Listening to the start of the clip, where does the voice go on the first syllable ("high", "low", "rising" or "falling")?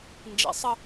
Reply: low